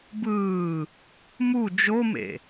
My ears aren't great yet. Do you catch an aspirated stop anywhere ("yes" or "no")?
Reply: no